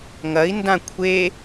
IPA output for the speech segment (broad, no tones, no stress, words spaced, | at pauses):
ŋɐi̯ndã kʷʰe